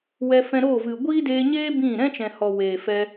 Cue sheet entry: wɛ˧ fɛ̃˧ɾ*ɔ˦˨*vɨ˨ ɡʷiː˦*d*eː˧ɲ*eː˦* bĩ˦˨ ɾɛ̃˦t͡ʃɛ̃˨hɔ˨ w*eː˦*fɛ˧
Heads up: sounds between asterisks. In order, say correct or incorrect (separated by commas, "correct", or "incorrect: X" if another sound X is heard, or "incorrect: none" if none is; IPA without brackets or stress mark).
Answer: incorrect: o˦˨, correct, correct, incorrect: eː˨